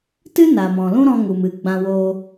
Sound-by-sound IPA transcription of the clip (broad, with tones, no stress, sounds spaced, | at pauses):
t ɨ˦ n a˨ m ɔ̃˨ l ũ˦ ɾ ɔ̃˧ ŋ u˨ m ɨ˨ ɡ͡b ã˧ w oː˧